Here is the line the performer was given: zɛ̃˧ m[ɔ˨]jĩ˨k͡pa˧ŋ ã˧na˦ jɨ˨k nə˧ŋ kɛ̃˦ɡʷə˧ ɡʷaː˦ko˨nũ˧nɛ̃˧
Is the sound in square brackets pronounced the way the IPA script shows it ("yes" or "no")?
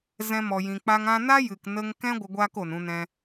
yes